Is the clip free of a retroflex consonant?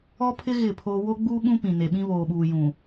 yes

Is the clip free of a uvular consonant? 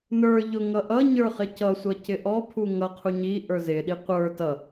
no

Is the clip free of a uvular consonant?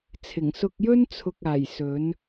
yes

